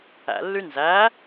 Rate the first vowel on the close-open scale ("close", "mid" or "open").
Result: open